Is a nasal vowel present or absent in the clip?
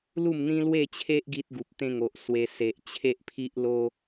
present